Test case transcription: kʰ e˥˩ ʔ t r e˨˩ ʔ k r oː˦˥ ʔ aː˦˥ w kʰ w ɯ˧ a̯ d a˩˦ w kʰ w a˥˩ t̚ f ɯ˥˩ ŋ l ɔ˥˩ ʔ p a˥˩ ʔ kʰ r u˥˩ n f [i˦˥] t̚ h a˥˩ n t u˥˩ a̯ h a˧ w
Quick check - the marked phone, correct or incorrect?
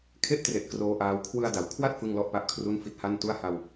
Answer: correct